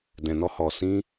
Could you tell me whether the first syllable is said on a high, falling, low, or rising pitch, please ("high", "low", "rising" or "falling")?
low